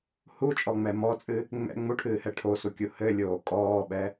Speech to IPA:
h u t͡ʃʼ ɔ ŋ͡m ɛ m ɔ t͡sʼ ɨ | ŋ͡m ɛ̰ ŋ͡m u ʈʰ ɨː h ɛ ʈʰ o s u kʲ u h ɘ lʲ oː kʼ ɔː ɓ ɛ

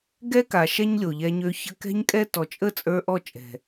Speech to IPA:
ɡ ɛ˦ k a˨ ʃ ɛ˦ ɲ lʲ o˨ ʎ ɛ˧ ɲ ø˧ ç ə˧ k ɛ̤˦ ɲ kʼ ɛ˦ t ɔ˨ t͡ʃʼ ə˦˨ t͡sʼ ə˞˧ ʔ ɔ˦˨ t͡ʃʼ ɛ̤˨

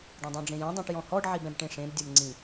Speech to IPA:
ɖ õ dˤ õ ɖ͡ʐ ẽ j ɛ̃ dˤ ĩ ʈ j ɔ̃ h ɔ ɖ ʕ i b ɛ̃ b ʈ ẽ ʂ ẽ b dʲ o m ŋ͡ǀ ĩ

